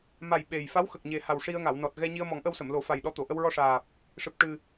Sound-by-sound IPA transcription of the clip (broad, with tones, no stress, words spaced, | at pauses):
ma˨˩j ɓe˨˩j fa˧˥wxə˨˩k̚ɲe˨˩ha˨˩w ʂi˧ə̯ŋa˨˩˨w nɔ˨˩t̚ ɣɛ˧ɲi˧ə̯ mɔ˨˩˦ŋʔə˧wsə˨˩˨mlo˨˩˦ fa˨˩jɗɔ˧t̪o˨˩˨ʔə˧w ɹɔ˧ʂaː˨˩p̚ | ʂɨ˨˩p̚ ʈɨ˨˩